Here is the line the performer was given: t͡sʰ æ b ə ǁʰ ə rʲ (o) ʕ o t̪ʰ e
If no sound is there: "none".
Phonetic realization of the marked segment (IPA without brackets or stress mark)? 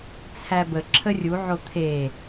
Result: u